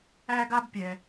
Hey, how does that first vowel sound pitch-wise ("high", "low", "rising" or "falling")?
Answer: high